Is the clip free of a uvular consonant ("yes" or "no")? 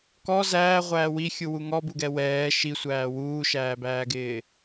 no